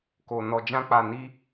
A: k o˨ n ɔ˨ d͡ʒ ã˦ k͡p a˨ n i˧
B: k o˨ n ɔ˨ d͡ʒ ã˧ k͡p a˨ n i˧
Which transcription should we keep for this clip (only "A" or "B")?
B